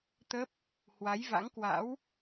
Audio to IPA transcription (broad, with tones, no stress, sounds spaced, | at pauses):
t̪ ə˦˥ p̚ | h w a˨˦ j v a̰˧˥ ŋ k w a̰˧˥ w